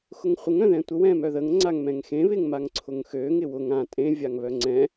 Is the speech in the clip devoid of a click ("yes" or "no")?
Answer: no